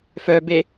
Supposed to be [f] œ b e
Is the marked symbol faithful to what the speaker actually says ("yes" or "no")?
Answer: yes